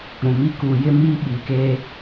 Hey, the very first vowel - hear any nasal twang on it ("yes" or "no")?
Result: yes